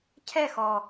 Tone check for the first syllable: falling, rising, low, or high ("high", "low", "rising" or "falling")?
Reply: falling